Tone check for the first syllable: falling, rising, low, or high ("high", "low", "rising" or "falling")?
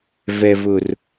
low